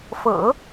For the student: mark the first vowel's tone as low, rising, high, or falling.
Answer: low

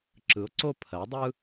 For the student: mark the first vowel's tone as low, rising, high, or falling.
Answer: rising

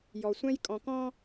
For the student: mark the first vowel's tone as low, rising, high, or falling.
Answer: low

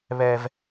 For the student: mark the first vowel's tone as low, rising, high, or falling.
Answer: high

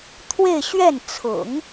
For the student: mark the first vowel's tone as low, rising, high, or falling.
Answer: falling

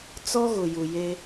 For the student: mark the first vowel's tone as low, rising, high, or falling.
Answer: high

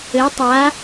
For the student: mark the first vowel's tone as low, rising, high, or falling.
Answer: rising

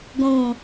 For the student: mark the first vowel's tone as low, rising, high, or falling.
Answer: low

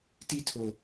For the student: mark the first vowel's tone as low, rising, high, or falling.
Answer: high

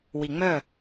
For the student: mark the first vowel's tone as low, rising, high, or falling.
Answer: low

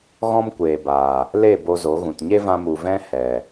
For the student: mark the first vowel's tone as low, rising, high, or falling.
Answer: high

